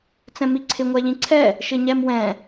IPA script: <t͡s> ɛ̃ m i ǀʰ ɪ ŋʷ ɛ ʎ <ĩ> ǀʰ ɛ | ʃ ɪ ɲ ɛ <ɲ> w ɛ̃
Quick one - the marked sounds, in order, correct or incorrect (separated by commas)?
correct, correct, incorrect